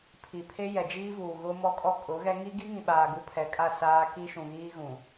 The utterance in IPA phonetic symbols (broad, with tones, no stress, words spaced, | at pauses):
pʰi˨pʰe˦ jɛ˨d͡ʒiː˦vuː˨ ɣʊ˦ mɔ˦kʼɔ˦kʼʊ˨˦ɣɛ˦ ŋi˦ɡi˦ŋĩ˨ɓaː˨ ɡu˦pʰɛ˨kʼa˦˨ saː˦ ki˦ʃũ˨ɣiː˦ ɣũ˨